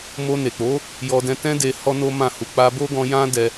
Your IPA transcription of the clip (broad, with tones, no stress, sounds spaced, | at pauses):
m o˧ n e˨ k͡p o˨˦ | j ɔ˧ d ɛ̃˧ t ɛ̃˦ d e˧ h ɔ˦ n o˦ m ã˦˨ h u˧ k͡p a˧ b o˦ ɡ ɔ̃˧ j ã˦ d ɛ˧